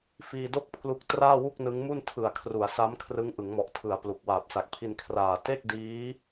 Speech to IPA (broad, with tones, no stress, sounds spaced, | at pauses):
f iː˧ d o˥˩ k̚ pʰ l u˦˥ k̚ t r aː˥˩ w u˥˩ k̚ n ɯ˦˥ ŋ m u˥˩ n tʰ ɯ˨˩ a̯ kʰ r u˩˦ a̯ s a˦˥ m kʰ r ɯ˦˥ ŋ ʔ ɯ˩˦ ŋ m ɔ˨˩ ʔ tʰ ɯ˩˦ a̯ p l u˨˩ k̚ w aː˨˩ p̚ s a˨˩ k̚ pʰ i˧ n kʰ r aː˨˩ t e˥˩ k̚ d iː˦˥